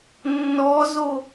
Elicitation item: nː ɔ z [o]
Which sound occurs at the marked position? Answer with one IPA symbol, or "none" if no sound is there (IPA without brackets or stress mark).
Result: o